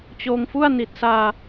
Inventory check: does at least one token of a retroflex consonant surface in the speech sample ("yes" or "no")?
no